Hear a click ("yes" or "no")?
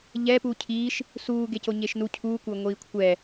no